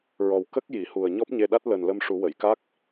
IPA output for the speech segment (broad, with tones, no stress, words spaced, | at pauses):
ɹɔ˨˩w kə˦˥k̚ ji˨˩˨hu˨˩ə̯ ɲɔ˦˥p̚ɲe˧ɗa˦˥t̚ ləː˨˩nlə˧mʂu˨˩˦wə˨˩˨j ka˦˥k̚